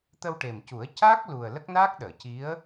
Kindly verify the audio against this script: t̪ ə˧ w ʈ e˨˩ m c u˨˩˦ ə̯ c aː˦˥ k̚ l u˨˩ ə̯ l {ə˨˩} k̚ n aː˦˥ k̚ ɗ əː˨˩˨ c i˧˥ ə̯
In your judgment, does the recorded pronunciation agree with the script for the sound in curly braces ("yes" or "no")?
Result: no